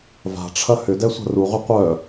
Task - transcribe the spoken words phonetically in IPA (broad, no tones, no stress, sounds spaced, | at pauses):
v a̤ ʈ͡ʂʰ ɐ h ʏ d ɛ sʷ a̤ r u ʁ ʏ qʷ œ